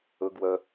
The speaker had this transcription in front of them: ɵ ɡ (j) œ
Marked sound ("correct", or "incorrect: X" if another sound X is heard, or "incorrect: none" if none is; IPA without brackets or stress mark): incorrect: w